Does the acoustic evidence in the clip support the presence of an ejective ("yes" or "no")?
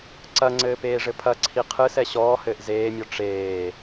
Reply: no